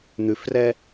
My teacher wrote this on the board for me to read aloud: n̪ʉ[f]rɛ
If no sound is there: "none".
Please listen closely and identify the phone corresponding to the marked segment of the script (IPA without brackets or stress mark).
f